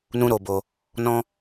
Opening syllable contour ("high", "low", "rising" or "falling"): high